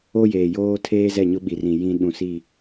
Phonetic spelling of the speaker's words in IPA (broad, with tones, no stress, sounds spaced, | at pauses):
o˦ j eː˨ j oː˦ tʰ eː˦ z ɛ˦˨ ɲ ʊ˦ ɓ i˨ r ĩ˨ j ĩ˦ ɗ ũ˨ s i˦˨